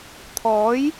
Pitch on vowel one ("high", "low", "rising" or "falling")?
rising